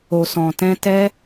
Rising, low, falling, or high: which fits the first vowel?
low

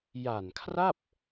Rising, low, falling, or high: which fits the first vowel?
low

